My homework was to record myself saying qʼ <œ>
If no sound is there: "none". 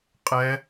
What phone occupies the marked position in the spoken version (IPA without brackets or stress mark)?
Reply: ɛ